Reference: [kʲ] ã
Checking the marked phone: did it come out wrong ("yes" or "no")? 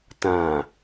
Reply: yes